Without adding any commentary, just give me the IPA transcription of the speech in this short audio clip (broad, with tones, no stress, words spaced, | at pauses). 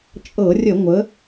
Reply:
t͡ʃʼɤ˧˩˧rʲə˧˩˧ ŋʷə˩˧